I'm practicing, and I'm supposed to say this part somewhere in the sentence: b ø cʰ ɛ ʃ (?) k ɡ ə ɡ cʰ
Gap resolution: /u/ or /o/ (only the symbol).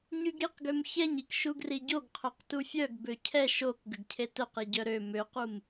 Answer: o